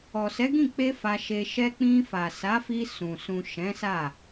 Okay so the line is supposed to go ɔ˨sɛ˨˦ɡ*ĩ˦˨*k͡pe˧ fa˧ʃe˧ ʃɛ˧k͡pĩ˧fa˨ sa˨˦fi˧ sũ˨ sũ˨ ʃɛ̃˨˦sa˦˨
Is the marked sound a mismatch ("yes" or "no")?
no